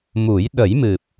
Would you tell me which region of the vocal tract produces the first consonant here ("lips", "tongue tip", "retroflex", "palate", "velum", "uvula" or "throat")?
lips